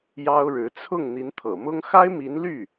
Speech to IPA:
j ɑ˥ ʊ̯ ɻ ɻ̩˧˥ t͡sʰ ʊ˥˩ ŋ n̪ i˧˥ n t̪ʰ ɤ̰˨˩ m ʊ˥ ŋ x a˥ ɪ̯ m i˧˥ n l y˥˩

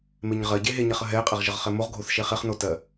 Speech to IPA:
m e ɲ ʁ ɜ ɟ e ɦ e ɲ ɛ χ ə ɦ ɛ e̯ qʼ ɛ ʁ ʒ ə ʁ χ ɛ m o ʁ ɡʱ o θ ʃ e χ e χ n o t ɜ

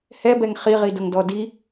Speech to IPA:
h ɛ b ɛ ŋ χ i ʁ i d ʊ ŋ d ɔ d i

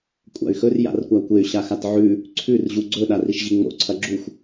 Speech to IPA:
kʷʼ a̰ y̯ x ɵ r j a̰ r kʷ a kʷ e y̯ ɕ a x a t ʕ ʉ | ǀʰ ʉ r ʑ u ɡ͡ǀ ɵ ɗ a r i ʃ ʑ i ŋ͡m o̰ ǀʰ ɐ ɡ͡ǁ u xʷ

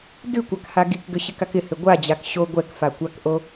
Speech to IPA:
d ʉ kʷ a k h a ɡ i k ɡ ʏ ɕ ɪ k a k ɪ h ʏ ɡʷ a d͡ʑ a k ɕ o ɡʷ ɛ k f a kʷ a k ʔ o

